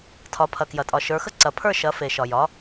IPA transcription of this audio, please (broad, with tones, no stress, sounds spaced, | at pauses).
tʰ ɒ˩˧ pʰ ɐ˩ k j ɐ˩ tʼ ɒ˩ ʃ ə˞˩˧ x ə˦˨ ǀ ɐ˩˧ pʰ ə˞˦˨ ʃ ɐ˩˧ f e˩ ʃ ɒ˩ j ɒ˩˧